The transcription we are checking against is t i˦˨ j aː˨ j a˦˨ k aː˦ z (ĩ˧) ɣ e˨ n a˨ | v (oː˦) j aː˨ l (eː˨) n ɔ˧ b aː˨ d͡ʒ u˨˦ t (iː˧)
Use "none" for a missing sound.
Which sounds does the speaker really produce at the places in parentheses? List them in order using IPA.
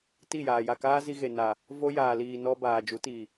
i˧, o˦, iː˨, iː˨

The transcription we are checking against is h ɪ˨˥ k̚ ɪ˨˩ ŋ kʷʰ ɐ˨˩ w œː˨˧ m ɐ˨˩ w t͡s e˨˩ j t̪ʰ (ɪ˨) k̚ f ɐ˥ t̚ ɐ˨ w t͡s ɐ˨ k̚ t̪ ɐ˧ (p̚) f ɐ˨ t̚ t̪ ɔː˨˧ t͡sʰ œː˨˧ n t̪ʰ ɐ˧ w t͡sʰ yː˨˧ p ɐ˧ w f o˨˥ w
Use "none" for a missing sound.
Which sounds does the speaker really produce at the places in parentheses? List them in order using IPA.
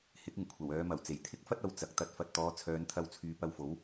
ɪ˥, t̚

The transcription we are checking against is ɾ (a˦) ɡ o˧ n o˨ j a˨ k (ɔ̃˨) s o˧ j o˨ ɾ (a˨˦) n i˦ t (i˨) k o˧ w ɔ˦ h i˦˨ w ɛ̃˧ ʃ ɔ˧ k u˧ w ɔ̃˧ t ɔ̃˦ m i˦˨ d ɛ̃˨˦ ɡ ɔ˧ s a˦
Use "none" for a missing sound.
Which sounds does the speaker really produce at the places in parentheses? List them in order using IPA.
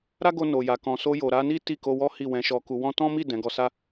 a˦, ɔ̃˨, a˨˦, i˦˨

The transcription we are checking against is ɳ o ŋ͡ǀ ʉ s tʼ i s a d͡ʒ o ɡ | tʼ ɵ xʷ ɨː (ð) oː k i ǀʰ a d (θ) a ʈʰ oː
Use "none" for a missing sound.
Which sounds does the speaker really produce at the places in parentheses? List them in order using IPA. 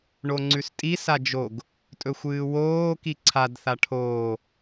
w, θ

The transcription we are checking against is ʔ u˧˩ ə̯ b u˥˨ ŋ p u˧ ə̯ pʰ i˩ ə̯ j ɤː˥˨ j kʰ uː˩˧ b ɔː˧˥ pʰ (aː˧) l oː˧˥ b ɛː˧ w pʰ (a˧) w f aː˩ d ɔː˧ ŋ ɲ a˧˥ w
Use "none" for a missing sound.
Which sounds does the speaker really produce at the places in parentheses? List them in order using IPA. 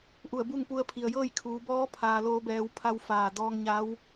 aː˧, a˧

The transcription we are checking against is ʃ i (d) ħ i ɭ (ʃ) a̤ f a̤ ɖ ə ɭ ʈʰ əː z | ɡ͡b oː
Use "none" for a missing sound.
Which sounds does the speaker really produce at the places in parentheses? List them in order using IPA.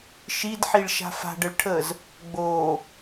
d, ʃ

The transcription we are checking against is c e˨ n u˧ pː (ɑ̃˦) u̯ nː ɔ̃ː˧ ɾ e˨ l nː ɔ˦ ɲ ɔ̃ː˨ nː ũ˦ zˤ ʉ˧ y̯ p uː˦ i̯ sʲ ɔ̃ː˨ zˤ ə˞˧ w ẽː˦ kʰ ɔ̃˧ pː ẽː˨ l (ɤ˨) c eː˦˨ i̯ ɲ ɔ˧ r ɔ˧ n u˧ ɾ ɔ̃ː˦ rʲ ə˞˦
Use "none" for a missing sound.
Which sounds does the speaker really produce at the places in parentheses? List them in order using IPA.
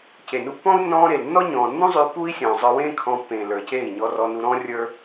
ɔ̃˦, ə˞˨

